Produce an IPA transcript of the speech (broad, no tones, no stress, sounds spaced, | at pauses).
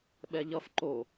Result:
ɓ ɛ ʎ ʌ f ǃ o